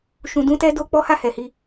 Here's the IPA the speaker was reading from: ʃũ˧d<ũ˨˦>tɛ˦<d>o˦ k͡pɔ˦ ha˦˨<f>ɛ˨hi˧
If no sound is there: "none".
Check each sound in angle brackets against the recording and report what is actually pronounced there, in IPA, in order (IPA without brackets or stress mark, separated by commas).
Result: ũ˦, d, h